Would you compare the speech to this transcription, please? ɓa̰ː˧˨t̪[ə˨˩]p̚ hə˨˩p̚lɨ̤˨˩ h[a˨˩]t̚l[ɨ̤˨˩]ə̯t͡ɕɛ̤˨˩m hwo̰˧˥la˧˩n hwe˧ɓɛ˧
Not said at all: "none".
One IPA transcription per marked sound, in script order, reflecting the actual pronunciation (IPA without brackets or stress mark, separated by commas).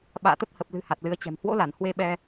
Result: ə˦˥, a˨˩, ɨ˨˦